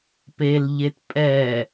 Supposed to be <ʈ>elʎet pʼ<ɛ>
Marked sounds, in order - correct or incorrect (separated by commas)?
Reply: incorrect, correct